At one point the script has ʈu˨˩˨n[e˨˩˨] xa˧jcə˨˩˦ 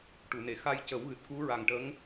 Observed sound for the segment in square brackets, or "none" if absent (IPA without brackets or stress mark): e˨˩˨